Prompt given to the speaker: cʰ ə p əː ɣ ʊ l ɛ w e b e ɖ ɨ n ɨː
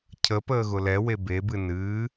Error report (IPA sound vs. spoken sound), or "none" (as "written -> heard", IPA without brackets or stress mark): ɖ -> b